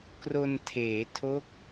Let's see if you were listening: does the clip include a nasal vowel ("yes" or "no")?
no